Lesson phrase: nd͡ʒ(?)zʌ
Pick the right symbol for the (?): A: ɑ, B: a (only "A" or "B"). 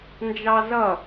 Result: A